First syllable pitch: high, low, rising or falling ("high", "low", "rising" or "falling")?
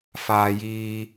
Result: high